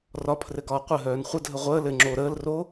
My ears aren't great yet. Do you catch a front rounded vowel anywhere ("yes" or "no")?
yes